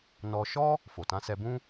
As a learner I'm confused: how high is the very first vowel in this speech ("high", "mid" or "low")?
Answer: mid